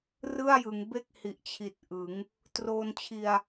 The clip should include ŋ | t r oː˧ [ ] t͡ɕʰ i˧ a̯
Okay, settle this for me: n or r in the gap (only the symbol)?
n